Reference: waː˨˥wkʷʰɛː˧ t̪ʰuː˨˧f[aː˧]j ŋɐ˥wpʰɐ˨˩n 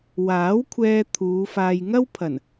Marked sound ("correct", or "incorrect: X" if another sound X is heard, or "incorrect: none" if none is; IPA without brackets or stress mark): correct